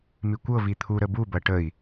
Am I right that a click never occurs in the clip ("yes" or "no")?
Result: yes